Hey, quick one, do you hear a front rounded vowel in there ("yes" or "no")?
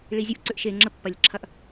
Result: yes